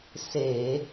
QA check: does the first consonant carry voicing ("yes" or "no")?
no